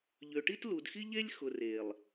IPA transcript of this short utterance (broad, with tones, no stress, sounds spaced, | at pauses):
ʎ ø˨ ʈ i˦ t l u˨ d x i˦ ʎ e˦ lʲ x ʊ˨ r e˨ lˠ